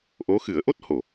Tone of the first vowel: rising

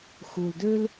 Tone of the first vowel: low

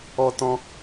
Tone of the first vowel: high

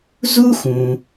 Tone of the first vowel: high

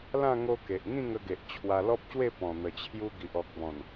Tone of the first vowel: falling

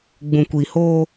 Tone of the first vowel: low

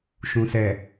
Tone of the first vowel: low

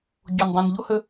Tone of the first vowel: low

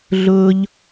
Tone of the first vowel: high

